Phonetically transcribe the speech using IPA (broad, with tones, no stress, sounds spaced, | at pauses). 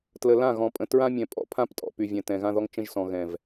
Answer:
t l ə˨ l ã˦˨ ɣ ɔ̃˨ pʼ ə̃˨ t ɹ ã˦ mʲ ɛ̃˨ pʼ ɔ̰˨ pʰ ã˦ p tʼ ɔ̰˨ p y˨ vʲ ɛ̃˨ t ɛ̃˨ ɣ ã˦ ð ɔ˦ ŋ t͡ʃ ə̃˦ ʒ s ɔ̃˨ ɣ ɛ̃˨ v